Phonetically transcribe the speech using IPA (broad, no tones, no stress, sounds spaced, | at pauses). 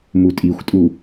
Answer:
m u tʼ i xʷ tʼ u